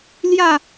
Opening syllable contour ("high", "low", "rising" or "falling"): falling